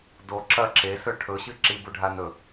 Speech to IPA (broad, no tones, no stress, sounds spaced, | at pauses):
d o ǁ ɐ ǁ e s ɵ ʈʰ ɵ ɕ ɨ ǁ i b u ɖʱ a n ɵ